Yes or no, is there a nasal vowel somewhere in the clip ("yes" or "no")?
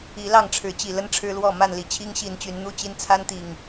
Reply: no